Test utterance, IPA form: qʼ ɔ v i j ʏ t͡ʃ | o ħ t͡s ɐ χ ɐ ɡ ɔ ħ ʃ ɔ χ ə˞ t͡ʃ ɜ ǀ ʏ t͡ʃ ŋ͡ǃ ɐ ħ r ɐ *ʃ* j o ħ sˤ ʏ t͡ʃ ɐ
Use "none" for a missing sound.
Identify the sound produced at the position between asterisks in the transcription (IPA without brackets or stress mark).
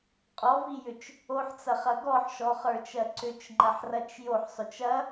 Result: t͡ʃ